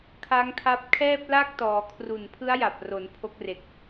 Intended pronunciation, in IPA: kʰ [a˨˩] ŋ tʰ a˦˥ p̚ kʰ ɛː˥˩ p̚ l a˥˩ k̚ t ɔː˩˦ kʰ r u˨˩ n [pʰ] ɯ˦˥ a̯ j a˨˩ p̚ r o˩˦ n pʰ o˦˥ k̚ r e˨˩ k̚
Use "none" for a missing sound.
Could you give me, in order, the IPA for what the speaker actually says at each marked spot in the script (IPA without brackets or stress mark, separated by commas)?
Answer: a˦˥, pʰ